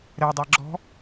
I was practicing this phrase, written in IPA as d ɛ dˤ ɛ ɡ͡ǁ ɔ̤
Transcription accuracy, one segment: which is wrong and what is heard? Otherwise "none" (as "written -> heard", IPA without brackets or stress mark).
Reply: d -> ɾ